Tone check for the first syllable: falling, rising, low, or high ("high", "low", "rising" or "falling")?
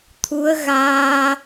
rising